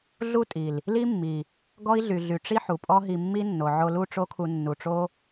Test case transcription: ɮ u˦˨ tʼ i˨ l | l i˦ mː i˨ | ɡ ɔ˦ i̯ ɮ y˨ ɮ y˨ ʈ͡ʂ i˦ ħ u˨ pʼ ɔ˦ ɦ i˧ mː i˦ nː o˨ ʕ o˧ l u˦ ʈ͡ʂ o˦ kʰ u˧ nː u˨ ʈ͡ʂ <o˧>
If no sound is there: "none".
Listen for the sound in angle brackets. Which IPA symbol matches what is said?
o˦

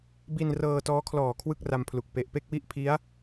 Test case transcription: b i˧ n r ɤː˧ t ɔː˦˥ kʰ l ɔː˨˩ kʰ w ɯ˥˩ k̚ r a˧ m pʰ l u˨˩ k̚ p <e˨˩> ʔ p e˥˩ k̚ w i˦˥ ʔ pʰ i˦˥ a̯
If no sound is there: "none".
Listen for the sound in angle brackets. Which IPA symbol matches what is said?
e˨˩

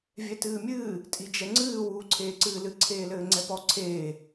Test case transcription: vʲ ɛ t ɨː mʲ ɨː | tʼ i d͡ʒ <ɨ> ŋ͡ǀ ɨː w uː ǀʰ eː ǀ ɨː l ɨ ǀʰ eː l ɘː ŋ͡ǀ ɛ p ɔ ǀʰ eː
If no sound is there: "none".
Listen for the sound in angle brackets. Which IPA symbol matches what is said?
ɛ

